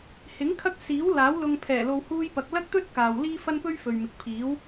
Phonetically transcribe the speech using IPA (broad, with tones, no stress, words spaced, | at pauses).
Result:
hɪ˨˥ŋ kʰɐ˥k̚ siː˨˥w laː˨˥w lʊ˧ŋpʰɛː˨˩lo˧w huː˥jpɐ˧k̚ lɐ˥k̚t̪ɵ˥t̚kaː˨w liː˥ fɐ˥npɵ˥ɥ fɵ˨ɥmɪ˨k̚pʰiː˨˥w